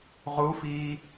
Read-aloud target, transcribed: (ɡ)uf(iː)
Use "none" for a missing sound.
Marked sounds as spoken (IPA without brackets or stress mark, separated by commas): ʁ, iː